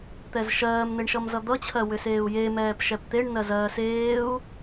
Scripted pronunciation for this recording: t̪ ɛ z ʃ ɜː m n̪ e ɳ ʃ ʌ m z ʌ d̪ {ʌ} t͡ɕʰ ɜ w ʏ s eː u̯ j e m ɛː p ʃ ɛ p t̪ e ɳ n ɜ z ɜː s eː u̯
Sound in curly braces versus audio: correct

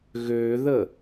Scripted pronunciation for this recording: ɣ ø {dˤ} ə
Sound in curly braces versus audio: incorrect: ð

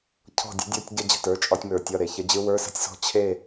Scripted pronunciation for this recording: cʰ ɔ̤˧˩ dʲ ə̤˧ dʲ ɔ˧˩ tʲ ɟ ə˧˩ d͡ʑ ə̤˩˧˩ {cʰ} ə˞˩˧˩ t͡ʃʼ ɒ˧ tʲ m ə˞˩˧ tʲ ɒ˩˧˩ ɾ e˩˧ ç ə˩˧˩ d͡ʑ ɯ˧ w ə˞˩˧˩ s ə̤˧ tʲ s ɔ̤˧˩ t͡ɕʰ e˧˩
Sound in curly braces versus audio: incorrect: t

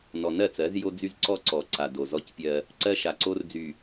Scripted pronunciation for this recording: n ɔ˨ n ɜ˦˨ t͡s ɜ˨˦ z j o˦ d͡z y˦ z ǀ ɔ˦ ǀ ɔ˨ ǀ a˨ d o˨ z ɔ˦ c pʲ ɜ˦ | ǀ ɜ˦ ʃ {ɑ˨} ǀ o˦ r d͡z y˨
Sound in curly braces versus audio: incorrect: a˨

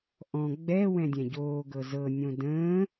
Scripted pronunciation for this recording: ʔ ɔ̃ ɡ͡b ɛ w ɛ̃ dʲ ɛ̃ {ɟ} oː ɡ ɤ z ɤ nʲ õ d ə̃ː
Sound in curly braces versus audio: correct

